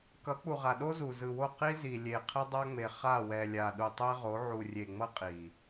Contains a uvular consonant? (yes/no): yes